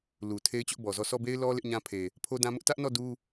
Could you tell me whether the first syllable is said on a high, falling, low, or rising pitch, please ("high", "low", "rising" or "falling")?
low